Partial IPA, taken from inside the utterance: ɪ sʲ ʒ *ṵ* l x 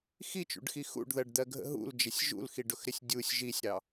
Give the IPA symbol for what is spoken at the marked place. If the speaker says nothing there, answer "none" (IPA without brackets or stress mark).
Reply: ṵ